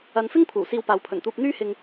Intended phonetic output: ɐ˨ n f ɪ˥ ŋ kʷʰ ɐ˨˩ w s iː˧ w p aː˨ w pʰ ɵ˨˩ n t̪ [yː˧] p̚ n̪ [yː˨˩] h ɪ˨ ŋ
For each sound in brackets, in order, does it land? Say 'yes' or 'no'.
no, no

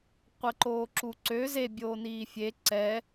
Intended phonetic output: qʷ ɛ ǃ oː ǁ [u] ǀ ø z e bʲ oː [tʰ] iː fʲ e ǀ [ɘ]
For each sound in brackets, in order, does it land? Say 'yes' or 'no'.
yes, no, no

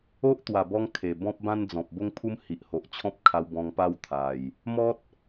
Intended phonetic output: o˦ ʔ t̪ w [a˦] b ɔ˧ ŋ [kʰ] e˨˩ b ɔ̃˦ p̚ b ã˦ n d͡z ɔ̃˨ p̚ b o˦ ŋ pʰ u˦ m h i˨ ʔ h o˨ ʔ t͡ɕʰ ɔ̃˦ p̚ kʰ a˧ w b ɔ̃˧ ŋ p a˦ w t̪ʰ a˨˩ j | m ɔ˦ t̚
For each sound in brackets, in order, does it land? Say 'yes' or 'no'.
no, yes

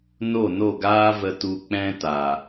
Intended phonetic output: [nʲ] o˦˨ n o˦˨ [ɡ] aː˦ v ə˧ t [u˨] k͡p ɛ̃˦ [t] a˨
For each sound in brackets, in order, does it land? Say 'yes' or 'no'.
no, yes, no, yes

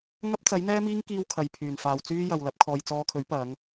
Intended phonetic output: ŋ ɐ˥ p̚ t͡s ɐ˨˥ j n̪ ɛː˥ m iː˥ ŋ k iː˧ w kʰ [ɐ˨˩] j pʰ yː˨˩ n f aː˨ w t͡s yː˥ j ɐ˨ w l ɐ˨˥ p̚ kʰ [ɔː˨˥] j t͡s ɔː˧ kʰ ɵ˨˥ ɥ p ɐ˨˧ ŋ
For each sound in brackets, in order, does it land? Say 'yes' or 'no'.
no, no

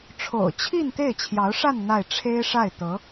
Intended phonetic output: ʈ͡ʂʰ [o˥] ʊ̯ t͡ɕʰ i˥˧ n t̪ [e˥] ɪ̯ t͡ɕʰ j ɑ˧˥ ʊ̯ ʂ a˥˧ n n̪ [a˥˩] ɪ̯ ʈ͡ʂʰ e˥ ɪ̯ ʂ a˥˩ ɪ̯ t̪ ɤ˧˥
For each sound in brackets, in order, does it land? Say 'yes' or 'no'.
no, no, yes

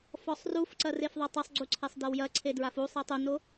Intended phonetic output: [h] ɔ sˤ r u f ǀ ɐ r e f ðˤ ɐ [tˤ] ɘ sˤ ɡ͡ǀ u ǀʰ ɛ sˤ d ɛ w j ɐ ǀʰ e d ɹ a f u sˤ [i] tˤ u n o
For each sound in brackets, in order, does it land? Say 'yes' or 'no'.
no, yes, yes

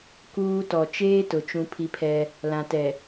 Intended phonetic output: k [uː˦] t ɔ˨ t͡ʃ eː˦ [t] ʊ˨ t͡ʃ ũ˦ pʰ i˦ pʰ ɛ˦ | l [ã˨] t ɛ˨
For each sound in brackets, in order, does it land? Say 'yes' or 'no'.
yes, yes, yes

